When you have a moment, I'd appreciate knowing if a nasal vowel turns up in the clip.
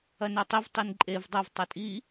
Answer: no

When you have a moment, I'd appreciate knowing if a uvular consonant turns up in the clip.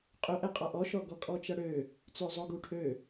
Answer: yes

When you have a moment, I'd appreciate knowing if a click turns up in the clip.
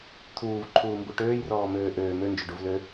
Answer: yes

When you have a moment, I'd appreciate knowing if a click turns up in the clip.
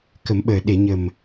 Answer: no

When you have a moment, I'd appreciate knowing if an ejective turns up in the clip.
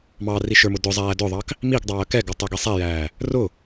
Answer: no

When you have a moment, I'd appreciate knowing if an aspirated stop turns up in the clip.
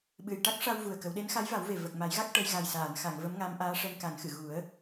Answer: no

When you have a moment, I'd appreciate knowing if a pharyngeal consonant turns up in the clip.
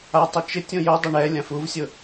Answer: no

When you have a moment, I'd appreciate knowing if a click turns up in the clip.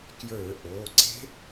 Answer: yes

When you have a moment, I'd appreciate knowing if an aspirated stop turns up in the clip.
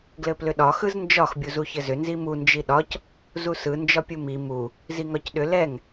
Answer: no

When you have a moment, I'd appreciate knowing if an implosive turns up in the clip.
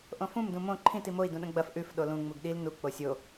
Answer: yes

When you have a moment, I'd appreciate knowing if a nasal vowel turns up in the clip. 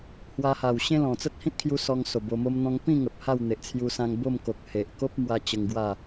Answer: yes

